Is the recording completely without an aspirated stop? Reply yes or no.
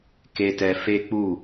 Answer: yes